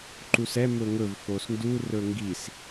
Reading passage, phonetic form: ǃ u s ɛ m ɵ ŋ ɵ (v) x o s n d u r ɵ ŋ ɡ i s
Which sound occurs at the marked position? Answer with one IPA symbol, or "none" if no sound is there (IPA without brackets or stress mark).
v